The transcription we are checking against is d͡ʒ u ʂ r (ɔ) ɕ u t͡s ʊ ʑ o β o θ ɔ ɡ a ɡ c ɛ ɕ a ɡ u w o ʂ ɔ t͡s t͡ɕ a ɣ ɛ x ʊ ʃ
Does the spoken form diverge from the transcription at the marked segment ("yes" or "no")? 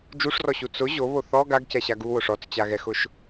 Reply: no